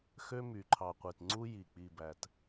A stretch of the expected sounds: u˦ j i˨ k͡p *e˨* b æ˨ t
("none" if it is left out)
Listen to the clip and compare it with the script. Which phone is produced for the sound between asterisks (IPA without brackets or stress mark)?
i˨